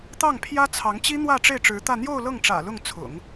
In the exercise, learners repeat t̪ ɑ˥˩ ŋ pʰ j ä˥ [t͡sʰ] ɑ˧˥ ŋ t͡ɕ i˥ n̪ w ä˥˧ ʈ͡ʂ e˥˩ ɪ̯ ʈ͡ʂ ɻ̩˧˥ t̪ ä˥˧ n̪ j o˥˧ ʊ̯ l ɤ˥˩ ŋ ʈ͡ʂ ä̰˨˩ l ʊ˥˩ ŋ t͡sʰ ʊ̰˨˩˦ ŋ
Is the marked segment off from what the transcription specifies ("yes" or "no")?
no